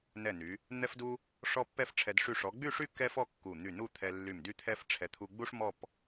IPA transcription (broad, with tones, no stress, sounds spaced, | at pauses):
n ɛ˧˩ n y˩˧ | n̪ ɛ˥ f d u˥ | ʂ ɔ˥ pː ɛ˥ f ʈ͡ʂʰ ɛ˧ d ʂ y˧˩ ʂ ɔ˩˧ ɡ͡b y˥˧ ʂ y˥˧ k ɛ˥ f ɔ˥˧ kː u˧˩ n̪ y˧˩ n u˥˧ t̪ʰ ɛ˧ lː y˧˩ m d y˥ t̪ʰ ɛ˥ f ʈ͡ʂʰ ɛ˧ t̪ʰ u˧ ɡ͡b u˥ ʂ m ɔ˥˧ p